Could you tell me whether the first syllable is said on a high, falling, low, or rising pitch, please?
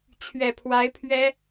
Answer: low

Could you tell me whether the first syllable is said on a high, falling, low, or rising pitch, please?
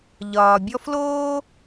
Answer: low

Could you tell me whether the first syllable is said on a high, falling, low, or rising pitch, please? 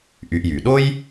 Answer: low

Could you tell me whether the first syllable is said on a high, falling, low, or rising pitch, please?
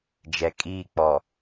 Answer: low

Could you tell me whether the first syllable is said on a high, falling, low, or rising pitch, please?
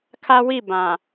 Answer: high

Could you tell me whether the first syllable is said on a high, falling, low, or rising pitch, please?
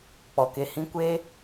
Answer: low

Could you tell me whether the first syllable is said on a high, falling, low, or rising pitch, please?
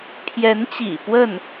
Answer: rising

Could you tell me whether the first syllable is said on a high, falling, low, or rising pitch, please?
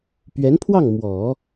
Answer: rising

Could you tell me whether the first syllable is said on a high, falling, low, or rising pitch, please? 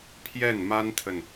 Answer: falling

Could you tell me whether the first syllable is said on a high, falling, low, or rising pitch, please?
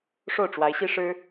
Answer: falling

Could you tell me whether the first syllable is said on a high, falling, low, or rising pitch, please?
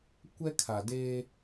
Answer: high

